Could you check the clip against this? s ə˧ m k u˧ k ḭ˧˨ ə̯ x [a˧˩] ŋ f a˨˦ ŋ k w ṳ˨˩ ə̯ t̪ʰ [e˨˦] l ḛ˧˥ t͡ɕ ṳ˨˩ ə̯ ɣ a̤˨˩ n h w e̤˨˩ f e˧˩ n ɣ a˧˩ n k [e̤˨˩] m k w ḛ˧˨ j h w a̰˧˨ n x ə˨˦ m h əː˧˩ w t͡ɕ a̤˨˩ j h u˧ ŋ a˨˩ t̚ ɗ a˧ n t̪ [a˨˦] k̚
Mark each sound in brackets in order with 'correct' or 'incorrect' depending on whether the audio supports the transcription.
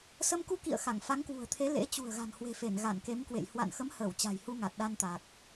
correct, correct, incorrect, incorrect

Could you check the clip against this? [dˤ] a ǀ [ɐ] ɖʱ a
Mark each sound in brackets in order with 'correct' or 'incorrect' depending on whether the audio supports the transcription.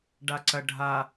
incorrect, correct

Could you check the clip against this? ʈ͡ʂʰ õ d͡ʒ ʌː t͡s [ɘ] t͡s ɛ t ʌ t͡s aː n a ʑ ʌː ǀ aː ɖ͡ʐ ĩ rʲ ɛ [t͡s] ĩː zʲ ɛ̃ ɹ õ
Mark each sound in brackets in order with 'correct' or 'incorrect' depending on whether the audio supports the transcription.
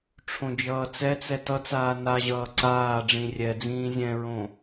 incorrect, incorrect

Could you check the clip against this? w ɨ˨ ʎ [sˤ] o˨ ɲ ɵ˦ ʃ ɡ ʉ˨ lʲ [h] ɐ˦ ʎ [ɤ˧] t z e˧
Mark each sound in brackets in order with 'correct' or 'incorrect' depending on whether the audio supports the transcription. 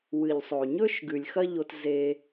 correct, incorrect, incorrect

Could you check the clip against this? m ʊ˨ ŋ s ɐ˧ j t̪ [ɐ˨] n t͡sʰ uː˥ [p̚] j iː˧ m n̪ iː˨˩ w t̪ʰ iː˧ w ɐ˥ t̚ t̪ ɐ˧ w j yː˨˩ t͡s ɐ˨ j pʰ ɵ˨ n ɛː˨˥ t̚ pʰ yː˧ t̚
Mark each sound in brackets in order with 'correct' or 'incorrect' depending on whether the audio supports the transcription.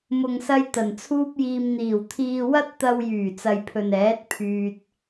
incorrect, correct

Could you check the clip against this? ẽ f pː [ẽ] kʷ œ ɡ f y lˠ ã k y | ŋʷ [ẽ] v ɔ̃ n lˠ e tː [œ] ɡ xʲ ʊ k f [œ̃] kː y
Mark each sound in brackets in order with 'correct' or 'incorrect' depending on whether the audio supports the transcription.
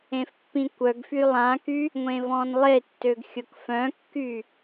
incorrect, correct, incorrect, correct

